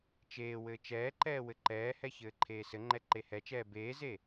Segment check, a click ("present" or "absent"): present